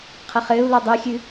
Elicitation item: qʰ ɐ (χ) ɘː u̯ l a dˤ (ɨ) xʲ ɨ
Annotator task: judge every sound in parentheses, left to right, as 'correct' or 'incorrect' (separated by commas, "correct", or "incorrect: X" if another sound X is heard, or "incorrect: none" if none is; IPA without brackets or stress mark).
correct, correct